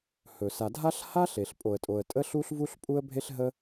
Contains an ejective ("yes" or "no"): yes